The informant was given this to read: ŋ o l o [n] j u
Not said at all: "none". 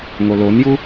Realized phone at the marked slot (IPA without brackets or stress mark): n